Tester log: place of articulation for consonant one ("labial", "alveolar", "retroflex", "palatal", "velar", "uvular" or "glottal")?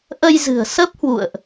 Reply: glottal